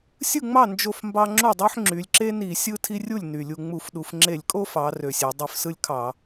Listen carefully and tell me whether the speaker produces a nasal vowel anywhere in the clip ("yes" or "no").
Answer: no